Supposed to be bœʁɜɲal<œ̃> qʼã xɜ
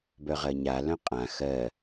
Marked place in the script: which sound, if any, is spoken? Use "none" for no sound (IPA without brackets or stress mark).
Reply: œ̃